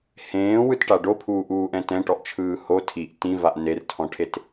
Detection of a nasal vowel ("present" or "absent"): present